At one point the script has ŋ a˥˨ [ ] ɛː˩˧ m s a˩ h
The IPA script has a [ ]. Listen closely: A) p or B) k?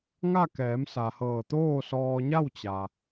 B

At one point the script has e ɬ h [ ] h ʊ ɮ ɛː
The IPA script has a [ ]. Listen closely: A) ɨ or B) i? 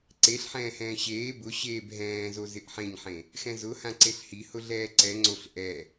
B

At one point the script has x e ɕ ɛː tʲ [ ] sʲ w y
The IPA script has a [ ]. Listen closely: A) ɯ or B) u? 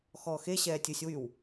A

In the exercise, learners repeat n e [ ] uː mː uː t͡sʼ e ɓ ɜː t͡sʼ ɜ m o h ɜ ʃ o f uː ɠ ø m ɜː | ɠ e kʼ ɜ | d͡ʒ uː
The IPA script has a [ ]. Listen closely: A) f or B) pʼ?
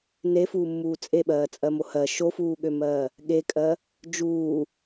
A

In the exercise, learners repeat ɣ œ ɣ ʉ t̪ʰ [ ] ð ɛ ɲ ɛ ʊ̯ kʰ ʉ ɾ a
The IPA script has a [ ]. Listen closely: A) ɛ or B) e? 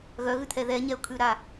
A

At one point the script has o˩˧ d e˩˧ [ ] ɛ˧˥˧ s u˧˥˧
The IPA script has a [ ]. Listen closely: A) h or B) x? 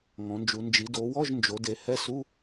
A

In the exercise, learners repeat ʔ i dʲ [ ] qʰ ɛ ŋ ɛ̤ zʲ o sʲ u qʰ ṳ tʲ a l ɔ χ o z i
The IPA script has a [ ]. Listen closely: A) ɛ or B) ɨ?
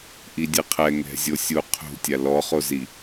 B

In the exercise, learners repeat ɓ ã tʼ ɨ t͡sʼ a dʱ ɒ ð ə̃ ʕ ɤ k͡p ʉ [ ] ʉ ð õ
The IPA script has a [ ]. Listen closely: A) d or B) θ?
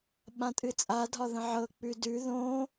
A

